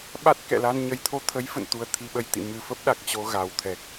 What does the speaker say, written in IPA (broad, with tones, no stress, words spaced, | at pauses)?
ɓa˦˥t̚kɛ̰˧˨la˧n ɲə˨˩jt̪ʰo˧ t̪ʰə˨˦jfə̰˧˨nt̪u˨˩ə̯ t̪ʰi˧ɓə˧j t̪ḭ˧˨ mɨ˨˩fə˦˥p̚ ɗa˨˩k̚t͡ɕo˧ɣa˨˩wt̪ʰɛ˨˩k̚